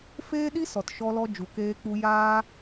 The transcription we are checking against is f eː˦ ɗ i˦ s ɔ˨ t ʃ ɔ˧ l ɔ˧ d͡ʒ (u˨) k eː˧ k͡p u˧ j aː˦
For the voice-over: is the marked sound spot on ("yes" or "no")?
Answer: yes